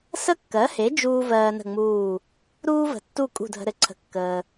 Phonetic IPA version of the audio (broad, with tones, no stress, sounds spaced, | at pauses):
s ə˥ kː ɜ˩˥ h e˩˥ d͡ʒ uː˥ v ɜː˧ n ə̤˥˩ ŋ͡m uː˥˩ | ɾ uː˥ v ə̤˩ tː u˥˩ kʼ ṳ˥˩ dʱ ə̤˧ ɾ ɘ˩ ǀʰ ə̤˩˥ kː əː˩